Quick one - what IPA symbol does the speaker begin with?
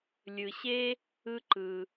lʲ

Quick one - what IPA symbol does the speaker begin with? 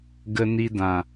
ɡ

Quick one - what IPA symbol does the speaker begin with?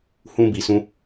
h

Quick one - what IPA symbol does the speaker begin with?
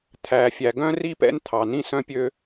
t̪ʰ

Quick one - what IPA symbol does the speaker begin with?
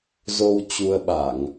z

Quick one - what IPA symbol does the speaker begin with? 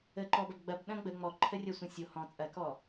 ə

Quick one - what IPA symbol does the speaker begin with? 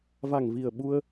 v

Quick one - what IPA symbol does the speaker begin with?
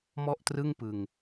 m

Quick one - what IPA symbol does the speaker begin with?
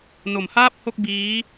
n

